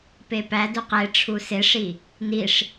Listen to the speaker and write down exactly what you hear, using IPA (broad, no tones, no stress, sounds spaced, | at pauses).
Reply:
p e p æ d u q e ʈ͡ʂʰ u s e ʂ i | n i ʂ